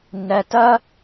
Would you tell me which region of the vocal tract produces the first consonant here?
tongue tip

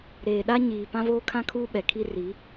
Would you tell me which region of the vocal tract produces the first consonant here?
tongue tip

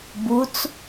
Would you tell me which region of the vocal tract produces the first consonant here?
lips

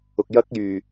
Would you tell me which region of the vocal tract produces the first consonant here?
velum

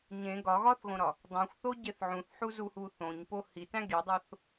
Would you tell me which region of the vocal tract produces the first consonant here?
palate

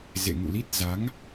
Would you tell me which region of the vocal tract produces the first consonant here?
tongue tip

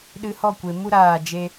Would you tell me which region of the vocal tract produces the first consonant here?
tongue tip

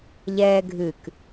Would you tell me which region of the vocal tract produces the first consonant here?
palate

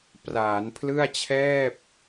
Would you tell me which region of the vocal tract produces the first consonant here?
lips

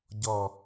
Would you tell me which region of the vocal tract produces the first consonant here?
palate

